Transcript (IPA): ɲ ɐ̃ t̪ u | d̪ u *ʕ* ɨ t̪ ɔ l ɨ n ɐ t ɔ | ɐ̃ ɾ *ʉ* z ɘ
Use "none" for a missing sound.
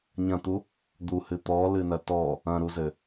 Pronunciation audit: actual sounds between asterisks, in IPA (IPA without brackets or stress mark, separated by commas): h, u